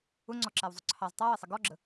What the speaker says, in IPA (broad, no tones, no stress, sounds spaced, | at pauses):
ʊ ŋ͡ǀ ɔ ǁ æ w zˤ ʊ ǀʰ ɑ z tˤ ɑ w ɪ sˤ ə ɡ ɔ ɡ͡ǁ ə